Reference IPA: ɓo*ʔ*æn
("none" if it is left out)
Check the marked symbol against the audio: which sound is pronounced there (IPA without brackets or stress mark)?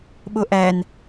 ʔ